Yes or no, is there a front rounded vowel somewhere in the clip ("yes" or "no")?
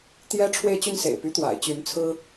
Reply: yes